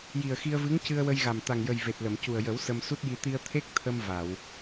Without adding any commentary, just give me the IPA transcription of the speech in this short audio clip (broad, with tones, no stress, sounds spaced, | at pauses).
j i˨˩ ə̯ x i˧ ə̯ v ɨ˧˥ ŋ c ɨ˧ ə̯ w ə˧ j ɣ a˨˩ m t̪ a˨˩ ŋ j ə˨˩ j v e˨˩ t̚ l ə˨˩˨ m c u˨˩ ə̯ j ə˨˩˦ w s ə˧ m s u˦˥ t̚ j i˧ t̪ i˧ ə̯ t̪ʰ e˦˥ k̚ t̪ʰ ə˧ m v a˨˩˨ w